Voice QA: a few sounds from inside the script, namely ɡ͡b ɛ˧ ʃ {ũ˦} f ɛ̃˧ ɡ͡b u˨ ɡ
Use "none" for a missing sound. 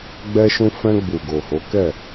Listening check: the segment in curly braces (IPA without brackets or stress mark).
ũ˧